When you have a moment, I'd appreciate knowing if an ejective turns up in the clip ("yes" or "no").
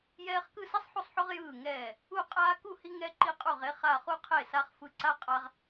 yes